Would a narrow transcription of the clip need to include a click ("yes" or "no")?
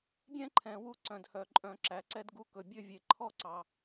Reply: yes